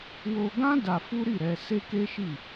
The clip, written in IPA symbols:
w o˧ ɡ ã˦ d a˧ f u˦ ɾ i˦˨ ɾ ɛ˧ s e˦ k e˦ ʃ i˦˨

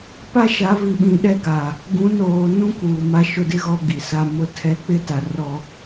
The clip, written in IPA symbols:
p a˦ ʃ a˨˦ v i˨ ɓ ĩ˨ ɗ ɛ˦ ɡ a˨ | ɡ ũ˨˦ n oː˨ n ũ˦ k uː˨ m a˦ ʃ ʊ˦ d ɪ˦ ɣ ɔ˦ ɡ i˨ s a˦ m ʊ˦ tʰ ɛ˦ k͡p ɪ˦ t a˨ r ɔ˦

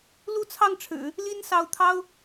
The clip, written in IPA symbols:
l u˥˧ t͡sʰ ɑ˥˩ ŋ ʈ͡ʂʰ ɻ̩˨˩˦ | l i˥ n s ɑ˧˥ ʊ̯ t̪ʰ ɑ˥ ʊ̯

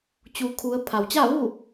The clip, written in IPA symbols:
t͡ɕ u˩˧ kʰ u˩˧ ə̯ pʰ a˩ w t͡ɕ a˥˨ ʋ u˥˨

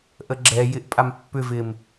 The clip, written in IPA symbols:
ʔ ə ɡ͡ǁ ɛ j ɪ ʔ pʼ a m pː ʏ v ɪ m

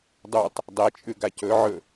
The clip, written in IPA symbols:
dˤ u tˤ | dˤ e t͡ʃʼ ʉ ɡ a c ɵ ʕ ɵ

